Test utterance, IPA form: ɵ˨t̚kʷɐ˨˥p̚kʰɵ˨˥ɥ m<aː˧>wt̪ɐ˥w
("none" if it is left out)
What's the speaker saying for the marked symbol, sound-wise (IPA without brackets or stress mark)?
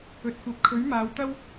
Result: aː˨˧